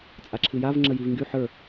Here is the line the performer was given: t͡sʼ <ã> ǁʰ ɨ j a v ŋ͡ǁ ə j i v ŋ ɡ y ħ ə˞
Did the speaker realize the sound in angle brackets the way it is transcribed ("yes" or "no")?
no